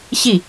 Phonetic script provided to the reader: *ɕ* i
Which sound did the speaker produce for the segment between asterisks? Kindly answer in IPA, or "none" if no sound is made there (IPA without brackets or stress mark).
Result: ɕ